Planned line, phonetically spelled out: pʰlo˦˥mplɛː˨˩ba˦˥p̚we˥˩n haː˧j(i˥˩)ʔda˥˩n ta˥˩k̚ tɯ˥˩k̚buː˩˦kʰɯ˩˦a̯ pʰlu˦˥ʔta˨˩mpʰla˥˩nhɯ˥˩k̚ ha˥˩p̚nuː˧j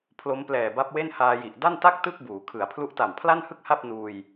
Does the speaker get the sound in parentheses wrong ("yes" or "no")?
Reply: yes